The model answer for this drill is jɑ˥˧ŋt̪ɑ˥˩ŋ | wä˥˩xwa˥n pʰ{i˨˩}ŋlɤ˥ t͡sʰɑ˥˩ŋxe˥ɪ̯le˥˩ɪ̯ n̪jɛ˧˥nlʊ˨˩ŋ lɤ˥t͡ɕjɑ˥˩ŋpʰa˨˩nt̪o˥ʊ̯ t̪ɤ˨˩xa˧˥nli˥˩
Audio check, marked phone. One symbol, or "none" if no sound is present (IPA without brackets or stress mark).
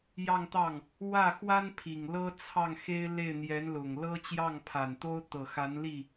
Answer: i˨˩